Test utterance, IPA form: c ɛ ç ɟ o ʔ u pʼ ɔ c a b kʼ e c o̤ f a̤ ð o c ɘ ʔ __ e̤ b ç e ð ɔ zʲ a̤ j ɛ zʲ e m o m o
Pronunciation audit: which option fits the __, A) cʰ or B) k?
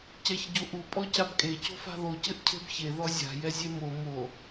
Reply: A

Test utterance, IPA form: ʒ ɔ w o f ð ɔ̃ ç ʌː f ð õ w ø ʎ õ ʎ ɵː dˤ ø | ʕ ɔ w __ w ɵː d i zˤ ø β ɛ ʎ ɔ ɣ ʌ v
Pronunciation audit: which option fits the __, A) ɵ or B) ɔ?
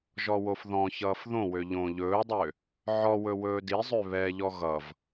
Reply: A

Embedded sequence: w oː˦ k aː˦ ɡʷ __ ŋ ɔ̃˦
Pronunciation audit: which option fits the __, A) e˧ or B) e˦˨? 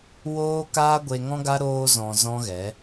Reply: A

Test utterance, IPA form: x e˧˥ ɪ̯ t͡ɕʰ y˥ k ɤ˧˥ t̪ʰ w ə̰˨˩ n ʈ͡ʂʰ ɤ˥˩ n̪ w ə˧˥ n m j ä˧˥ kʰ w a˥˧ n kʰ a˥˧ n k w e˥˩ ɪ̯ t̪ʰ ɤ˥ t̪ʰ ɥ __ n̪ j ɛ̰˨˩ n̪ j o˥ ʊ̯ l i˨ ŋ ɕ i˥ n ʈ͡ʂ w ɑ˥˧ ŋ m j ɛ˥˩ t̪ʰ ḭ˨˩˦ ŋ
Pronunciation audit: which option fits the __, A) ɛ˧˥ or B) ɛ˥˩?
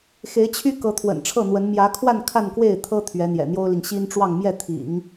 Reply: A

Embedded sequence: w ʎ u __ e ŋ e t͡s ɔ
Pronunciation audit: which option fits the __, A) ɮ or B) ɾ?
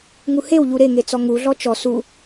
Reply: B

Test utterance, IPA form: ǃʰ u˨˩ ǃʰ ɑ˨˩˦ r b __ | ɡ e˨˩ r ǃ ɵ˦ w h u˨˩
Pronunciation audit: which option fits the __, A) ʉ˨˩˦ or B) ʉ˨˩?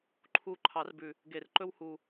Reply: B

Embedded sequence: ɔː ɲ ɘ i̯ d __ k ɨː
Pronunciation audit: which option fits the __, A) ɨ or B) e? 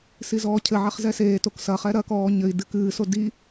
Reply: A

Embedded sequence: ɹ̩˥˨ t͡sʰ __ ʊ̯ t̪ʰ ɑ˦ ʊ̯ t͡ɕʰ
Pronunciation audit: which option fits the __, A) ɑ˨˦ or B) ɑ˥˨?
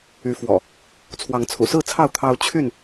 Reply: B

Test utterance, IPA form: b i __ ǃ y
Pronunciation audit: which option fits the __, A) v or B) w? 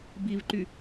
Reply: A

